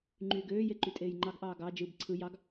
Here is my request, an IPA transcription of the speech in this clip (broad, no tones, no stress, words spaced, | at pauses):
ŋ͡ǃyːɡøːje ǃytʼeːjŋ͡ǃɑɡʔɑː ɡɑ d͡ʒɯb ǀʰɯ jɑɡ